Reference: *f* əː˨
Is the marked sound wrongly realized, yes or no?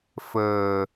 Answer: no